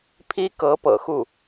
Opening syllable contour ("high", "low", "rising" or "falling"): high